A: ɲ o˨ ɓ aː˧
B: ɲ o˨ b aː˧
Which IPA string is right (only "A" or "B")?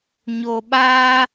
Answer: A